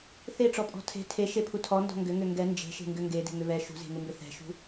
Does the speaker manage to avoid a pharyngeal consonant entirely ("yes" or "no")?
yes